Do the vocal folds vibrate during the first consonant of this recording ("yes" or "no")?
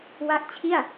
yes